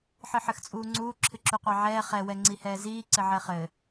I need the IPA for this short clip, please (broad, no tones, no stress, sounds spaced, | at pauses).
ħ ɨ ħ ɘ x t͡sʼ uː ŋ͡ǀ uː ǁʰ ɨ ǁ u qʷ ɑ ʕ ɛː χ ɛ w ɛ ŋ͡ǀ i h ɛː z iː ǀ ɘ ʕ ɛ χ ɘ